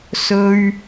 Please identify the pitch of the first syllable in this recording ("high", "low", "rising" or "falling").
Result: high